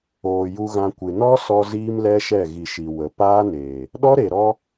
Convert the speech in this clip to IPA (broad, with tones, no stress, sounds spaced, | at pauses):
oː˨ j u˧ ɣ ã˧ kʷ ɨ˨ n ɔ˦ s ɔ˧ z iː˦ m l ɛ˦ ʃ ɛ˦˨ ɣ i˨ ʃ i˨ w ə˨ p aː˦ n eː˨ | ɗ ɔ˦ ɾ e˨ ɾ ɔ˦